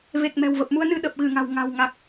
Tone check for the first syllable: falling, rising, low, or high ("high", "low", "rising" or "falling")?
low